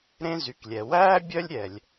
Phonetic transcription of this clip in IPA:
ɾ ẽ˥ z y˩ k lʲ ɛ˩ w æː˥ bʲ œ˥ lʲ ɾʲ ɛ˩ lʲ

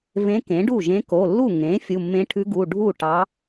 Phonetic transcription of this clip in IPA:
v ẽ˧˥ k ẽ˩˥ ɖ u˥˩ ʒ ẽ˧˥ k o˩˧˩ lː u˥˩ ŋ ẽ˩˥ fʲ u˩˧˩ mː ẽ˧˥ ʈʰ ʉ˧˥ ɡ u˩˧˩ ɖʱ u˥˩ ʈ ɑ˧˥

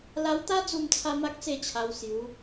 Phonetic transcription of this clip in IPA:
l a˧ w t̪ a˦ d͡z u˥˧ m t͡sʰ a˦ m a˦ k̚ t͡s e˥˧ t͡ɕʰ a˧ w s j u˨˦

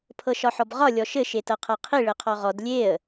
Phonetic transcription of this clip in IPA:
pʰ ɤ ʃ ɒ ħ ɔ b ʁ ɒ lʲ ɔ ʃ ɘ ʃ e t ɤ qʰ ɤ qʰ i ɭ ɘ qʰ ɔ ʁ ɔ d lʲ e ə̯

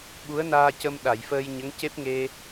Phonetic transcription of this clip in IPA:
ɓ u˧˥ ə̯ n aː˧ c ə˧ m ɗ a˨˩˨ j f əː˧ j ɲ ə˧˥ ŋ c e˦˥ p̚ ŋ e˧

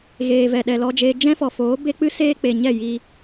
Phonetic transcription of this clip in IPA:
ɣ eː˨ v ɛ˨ ɗ ɛ˨ l ɔ˧ d͡ʒ eː˧ d͡ʒ ɛ̃˦ f ɔ˨ f oː˨˦ b e˦ k͡p ɨ˦ s eː˦ k͡p e˨ ɲ ɛ˦˨ j i˧

